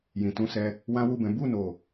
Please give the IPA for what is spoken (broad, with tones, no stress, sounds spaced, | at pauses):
j ĩ˨ t ũ˧ s ɛ˧ | w ã˦ w u˦˨ b ɛ̃˨˦ b u˦˨ n o˨